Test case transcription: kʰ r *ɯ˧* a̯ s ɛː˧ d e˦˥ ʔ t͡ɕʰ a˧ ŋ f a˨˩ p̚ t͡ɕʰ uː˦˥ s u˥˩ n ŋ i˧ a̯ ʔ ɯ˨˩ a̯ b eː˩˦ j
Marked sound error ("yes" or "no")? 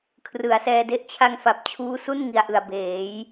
yes